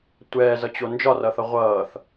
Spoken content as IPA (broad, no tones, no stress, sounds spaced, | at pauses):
tʷ ɛː z ʌ t͡ɕ o n d͡ʒ ɒ r ʌ θ ʌ ʁʷ ʌː θ